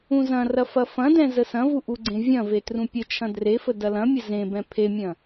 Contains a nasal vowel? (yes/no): yes